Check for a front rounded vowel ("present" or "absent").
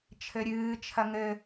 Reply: absent